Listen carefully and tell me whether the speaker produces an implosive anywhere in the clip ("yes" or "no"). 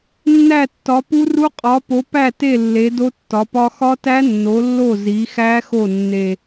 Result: no